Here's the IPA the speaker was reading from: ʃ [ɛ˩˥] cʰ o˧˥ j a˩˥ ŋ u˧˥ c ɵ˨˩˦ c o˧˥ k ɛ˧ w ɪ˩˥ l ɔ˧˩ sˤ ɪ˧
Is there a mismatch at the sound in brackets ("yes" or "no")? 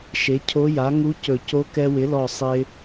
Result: yes